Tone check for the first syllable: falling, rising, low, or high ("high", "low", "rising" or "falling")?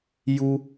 low